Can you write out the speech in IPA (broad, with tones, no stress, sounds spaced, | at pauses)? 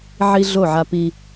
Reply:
ʕ i˦ ɮ o˦˨ ʕ a˦ p i˦